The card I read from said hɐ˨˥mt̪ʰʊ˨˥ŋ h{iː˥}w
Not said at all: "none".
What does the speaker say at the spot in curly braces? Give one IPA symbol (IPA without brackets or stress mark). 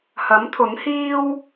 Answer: iː˥